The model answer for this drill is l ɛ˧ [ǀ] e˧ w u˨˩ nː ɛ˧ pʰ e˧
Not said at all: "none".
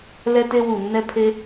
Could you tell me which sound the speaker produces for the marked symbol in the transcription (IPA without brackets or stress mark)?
t